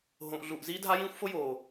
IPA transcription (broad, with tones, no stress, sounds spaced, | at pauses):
ɦ õ˨ ʔ ɮ u˨ ʔ z iː˦ dʱ a˦ j ĩː˦ xʷ f o˦ j oː˨